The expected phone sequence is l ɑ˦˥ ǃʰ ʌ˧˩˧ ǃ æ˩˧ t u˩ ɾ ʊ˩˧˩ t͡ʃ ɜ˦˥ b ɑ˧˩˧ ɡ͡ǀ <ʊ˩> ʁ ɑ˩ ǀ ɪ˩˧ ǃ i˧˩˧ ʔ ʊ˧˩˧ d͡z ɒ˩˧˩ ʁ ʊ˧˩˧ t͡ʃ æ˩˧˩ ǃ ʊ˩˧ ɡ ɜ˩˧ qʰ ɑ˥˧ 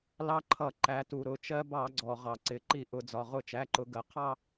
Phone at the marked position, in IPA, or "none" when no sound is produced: ɔ˩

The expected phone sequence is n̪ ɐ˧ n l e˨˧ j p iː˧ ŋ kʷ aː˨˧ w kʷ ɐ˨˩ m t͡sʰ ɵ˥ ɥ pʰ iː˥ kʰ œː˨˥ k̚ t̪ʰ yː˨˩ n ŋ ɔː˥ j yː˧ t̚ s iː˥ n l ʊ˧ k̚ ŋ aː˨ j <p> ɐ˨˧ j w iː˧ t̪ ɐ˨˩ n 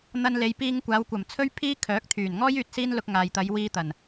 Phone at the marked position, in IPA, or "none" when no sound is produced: t̪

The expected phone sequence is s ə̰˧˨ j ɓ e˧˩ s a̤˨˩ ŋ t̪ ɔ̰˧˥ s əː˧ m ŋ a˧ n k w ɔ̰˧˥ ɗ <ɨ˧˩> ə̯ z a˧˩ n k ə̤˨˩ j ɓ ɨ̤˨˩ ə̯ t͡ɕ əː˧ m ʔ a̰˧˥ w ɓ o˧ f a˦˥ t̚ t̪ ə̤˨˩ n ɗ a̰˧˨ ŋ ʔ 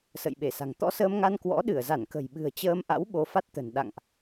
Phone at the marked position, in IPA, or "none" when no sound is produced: ɨ˧˩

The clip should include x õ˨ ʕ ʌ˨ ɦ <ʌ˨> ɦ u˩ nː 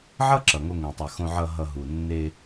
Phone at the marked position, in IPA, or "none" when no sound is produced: ʌ˨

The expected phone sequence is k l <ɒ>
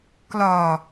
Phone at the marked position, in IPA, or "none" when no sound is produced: ɒ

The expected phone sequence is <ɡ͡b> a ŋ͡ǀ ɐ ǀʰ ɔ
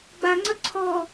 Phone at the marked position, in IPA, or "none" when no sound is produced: ɡ͡b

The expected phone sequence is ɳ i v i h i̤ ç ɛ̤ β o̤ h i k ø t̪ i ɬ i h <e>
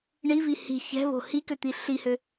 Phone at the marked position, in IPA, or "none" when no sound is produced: ø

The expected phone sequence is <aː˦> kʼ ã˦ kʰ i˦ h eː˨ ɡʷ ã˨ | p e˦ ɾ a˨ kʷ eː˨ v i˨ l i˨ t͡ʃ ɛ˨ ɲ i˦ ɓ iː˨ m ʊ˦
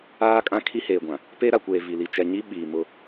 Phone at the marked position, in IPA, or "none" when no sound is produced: aː˦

